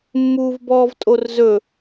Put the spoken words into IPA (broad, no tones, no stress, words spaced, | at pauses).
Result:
mːuːvbɔːvtʼorzɵ